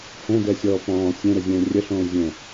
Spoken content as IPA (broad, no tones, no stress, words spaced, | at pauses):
hɛ̃dɛsʲɔː pɔ̃ː sʲɛ̃ɾəzʲɛ̃ː rʲəɬõː zʲə̃